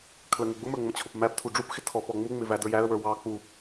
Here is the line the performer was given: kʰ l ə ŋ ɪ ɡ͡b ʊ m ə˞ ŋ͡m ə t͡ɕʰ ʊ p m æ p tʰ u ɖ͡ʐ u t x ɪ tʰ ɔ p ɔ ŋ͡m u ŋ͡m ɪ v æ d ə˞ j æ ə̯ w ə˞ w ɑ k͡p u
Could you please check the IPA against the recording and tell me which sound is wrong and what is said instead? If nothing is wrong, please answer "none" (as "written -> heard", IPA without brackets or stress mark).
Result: t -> p